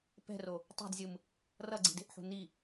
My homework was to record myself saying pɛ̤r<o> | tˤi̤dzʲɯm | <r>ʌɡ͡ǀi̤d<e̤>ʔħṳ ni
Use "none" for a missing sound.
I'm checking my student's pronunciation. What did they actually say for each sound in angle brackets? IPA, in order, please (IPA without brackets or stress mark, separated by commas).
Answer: o, r, e̤